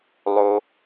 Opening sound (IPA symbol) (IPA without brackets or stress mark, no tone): lˠ